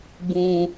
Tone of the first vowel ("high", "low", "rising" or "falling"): low